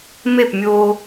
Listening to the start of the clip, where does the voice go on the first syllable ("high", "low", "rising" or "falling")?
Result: falling